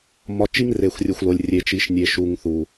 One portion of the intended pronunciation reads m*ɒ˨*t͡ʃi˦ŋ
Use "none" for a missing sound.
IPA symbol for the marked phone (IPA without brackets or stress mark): ɒ˨